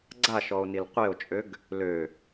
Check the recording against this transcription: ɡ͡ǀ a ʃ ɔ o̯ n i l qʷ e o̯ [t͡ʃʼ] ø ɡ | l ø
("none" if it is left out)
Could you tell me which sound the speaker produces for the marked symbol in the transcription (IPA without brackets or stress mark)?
t͡ʃʼ